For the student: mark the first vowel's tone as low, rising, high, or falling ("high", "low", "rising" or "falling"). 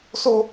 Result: high